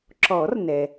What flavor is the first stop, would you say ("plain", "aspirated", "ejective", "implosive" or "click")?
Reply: click